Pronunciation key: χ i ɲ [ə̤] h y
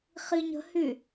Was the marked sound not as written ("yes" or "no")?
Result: no